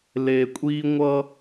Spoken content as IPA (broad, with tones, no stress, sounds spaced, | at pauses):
l e˨ kʷʼ i˦ ŋʷ ʌ˦